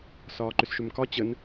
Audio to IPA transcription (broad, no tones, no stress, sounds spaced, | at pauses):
s ɒː ǃ ʏ s ʃ ʏ m k ɒ t͡ɕ ə n